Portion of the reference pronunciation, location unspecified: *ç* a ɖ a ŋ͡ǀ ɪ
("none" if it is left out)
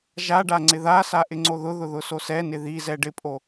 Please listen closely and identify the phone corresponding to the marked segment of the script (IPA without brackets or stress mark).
ʒ